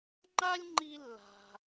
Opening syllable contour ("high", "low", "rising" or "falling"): high